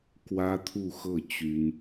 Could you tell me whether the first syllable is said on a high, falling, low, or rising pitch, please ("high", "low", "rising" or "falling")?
high